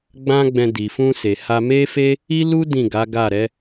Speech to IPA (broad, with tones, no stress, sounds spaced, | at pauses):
ɡ͡b ã˦ ɡ͡b ɛ̃˧ d i˨ f ũ˧ s e˨ h a˧ m e˦ f e˦ | i˦ l u˦ d ĩ˦˨ ɡ a˨˦ ɡ a˦˨ ɾ ɛ˨˦